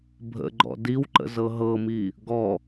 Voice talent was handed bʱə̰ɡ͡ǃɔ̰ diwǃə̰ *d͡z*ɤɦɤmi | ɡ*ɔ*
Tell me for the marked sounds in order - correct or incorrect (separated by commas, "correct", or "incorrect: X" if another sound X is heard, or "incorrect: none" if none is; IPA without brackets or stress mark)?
incorrect: z, correct